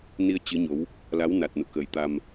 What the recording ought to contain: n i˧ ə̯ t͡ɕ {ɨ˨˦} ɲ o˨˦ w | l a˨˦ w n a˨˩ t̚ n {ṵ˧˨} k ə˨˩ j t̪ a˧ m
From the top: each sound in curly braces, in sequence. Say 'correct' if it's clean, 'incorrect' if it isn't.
correct, correct

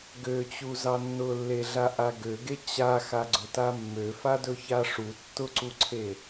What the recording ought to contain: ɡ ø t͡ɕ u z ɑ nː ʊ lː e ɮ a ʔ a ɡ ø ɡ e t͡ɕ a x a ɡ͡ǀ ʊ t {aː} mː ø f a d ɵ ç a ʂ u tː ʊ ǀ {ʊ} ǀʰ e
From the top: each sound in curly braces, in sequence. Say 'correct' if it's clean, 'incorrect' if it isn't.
incorrect: a, incorrect: u

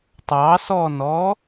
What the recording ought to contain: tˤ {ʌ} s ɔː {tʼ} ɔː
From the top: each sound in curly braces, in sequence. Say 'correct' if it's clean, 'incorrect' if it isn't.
incorrect: ɑ, incorrect: n

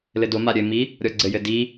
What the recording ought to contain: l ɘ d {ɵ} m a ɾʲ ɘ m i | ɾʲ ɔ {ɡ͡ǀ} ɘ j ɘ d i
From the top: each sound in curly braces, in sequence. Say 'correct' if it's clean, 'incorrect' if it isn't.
incorrect: o, correct

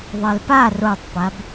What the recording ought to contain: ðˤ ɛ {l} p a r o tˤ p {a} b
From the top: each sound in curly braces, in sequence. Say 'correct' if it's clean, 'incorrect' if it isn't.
correct, correct

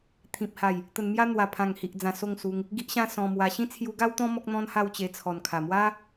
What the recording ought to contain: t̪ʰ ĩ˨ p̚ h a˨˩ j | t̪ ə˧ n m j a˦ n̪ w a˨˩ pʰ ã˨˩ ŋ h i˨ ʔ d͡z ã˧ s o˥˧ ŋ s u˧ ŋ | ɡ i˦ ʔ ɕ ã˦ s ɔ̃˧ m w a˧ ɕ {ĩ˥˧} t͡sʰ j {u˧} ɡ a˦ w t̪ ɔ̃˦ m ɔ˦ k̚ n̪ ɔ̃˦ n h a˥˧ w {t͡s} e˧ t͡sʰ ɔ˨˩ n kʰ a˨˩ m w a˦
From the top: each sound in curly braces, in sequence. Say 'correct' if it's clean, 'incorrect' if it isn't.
correct, correct, incorrect: t͡ɕ

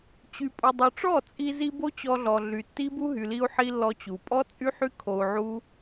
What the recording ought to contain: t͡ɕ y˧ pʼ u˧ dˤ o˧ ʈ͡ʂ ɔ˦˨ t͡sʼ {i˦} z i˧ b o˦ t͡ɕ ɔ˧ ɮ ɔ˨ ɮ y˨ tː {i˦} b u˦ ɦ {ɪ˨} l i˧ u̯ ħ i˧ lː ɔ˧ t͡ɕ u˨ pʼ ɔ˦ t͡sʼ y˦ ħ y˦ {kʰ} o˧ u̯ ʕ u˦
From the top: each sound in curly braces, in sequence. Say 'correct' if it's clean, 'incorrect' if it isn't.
incorrect: i˧, correct, incorrect: y˨, correct

